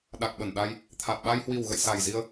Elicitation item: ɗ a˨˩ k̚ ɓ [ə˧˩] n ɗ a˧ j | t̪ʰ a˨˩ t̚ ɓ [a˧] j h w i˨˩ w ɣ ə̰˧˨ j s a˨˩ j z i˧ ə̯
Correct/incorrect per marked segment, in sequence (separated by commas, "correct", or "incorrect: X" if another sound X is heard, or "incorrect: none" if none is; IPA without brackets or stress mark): correct, correct